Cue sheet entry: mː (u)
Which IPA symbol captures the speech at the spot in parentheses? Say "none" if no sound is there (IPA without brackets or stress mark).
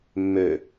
ø